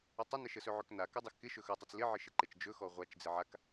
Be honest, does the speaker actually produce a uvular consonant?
yes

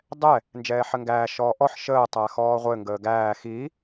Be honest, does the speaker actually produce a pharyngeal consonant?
yes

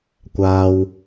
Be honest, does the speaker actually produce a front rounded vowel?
no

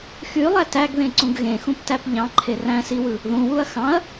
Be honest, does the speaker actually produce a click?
yes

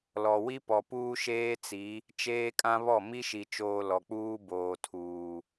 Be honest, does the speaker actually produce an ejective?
yes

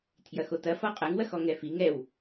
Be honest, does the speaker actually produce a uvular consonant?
yes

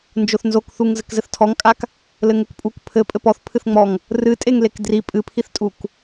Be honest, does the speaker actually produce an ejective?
yes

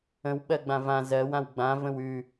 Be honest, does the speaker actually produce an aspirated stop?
no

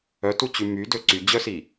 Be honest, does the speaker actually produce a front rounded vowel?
yes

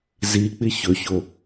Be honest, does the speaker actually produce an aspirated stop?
no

